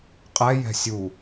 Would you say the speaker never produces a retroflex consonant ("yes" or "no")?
yes